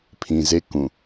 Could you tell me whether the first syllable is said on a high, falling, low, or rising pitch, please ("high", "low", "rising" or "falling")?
low